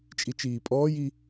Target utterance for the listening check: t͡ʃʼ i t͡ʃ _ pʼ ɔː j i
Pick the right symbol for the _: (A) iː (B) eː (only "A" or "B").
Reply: A